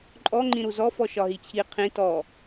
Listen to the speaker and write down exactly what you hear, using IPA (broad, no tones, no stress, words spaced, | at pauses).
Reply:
ǃʼɔ ŋ͡ǃĩɾuzɔ fɔʃɒɦit͡ɕʰi qʰĩ tɔ